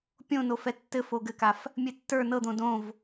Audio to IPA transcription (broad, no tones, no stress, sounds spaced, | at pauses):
pʲ õ n o f ɛ tː ɘ f o ɡ ɘ k a f | mʲ ɘ tː ə˞ n ɤ d̪ õ d õ v